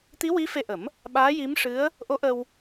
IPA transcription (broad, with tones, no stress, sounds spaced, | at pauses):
t̪ i˧˥ w i˧˥ f e˧ ʔ ə˨˩˦ m | ɓ aː˧˥ j i˧˥ m ʂ ɨ˧˥ ə̯ | ʔ o˧˥ ʔ ə˧ w